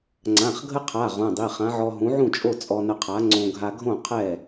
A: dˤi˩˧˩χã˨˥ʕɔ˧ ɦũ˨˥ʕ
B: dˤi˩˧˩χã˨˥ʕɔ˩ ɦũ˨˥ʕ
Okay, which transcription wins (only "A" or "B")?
A